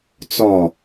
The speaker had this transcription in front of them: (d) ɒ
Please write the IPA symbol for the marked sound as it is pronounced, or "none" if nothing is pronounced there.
t͡s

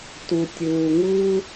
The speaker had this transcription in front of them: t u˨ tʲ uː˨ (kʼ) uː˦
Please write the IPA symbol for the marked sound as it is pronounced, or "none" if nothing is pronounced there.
ŋ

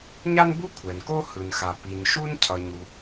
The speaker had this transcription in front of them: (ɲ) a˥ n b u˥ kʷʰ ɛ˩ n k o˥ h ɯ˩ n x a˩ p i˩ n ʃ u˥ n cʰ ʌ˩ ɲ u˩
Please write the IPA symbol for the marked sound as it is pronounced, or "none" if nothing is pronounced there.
ɲ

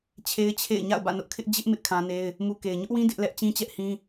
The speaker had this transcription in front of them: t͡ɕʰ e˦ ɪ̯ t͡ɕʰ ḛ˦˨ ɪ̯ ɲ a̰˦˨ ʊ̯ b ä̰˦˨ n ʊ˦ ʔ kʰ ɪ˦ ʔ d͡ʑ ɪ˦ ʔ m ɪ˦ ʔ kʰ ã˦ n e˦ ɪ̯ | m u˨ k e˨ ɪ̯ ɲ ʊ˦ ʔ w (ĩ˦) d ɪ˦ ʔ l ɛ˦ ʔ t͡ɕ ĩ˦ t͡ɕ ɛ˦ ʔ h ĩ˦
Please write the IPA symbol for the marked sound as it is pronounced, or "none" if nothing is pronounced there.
ĩ˦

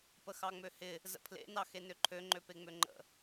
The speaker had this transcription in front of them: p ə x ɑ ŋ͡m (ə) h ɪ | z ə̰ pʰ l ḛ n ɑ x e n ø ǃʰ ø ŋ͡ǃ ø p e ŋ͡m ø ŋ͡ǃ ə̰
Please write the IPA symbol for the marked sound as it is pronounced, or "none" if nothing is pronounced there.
ø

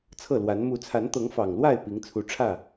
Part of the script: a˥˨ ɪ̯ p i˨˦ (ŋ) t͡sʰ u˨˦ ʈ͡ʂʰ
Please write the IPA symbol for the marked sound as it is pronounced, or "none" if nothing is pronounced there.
ŋ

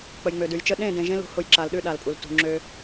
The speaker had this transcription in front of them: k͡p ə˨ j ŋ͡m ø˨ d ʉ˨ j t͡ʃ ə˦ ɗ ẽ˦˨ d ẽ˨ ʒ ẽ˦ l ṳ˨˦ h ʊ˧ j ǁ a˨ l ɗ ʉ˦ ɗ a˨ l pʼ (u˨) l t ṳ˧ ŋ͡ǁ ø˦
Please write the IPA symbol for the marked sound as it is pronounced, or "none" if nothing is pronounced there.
u˨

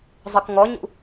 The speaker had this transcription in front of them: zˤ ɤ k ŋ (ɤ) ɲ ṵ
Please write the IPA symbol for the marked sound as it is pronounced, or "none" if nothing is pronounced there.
ɔ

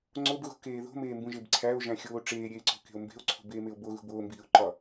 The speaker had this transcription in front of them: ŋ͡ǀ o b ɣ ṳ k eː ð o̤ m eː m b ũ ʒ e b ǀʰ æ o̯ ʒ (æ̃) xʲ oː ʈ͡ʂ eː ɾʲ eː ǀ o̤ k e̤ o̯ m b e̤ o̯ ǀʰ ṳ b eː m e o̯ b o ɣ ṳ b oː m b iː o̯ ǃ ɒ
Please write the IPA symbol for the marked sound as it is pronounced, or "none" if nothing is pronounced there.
æ̃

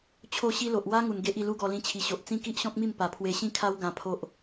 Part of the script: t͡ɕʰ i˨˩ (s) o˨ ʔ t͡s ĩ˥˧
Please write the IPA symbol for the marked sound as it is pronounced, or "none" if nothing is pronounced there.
ɕ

